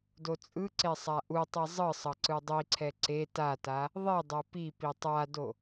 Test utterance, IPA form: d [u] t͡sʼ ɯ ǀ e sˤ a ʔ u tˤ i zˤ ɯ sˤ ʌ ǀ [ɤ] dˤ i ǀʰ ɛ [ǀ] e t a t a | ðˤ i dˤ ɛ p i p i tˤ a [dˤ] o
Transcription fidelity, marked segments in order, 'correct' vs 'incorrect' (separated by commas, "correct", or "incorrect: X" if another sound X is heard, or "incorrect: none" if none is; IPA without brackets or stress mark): incorrect: o, incorrect: ɯ, correct, incorrect: d